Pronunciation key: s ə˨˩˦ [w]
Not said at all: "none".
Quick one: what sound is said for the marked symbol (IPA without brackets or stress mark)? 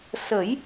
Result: j